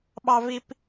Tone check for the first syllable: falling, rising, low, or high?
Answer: high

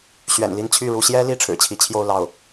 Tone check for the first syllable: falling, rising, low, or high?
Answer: low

